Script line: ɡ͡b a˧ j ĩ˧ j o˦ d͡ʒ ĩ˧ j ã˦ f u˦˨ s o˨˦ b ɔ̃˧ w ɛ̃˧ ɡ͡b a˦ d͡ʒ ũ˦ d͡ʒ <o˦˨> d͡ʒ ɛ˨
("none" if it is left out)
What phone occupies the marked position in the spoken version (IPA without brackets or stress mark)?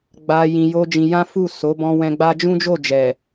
o˦˨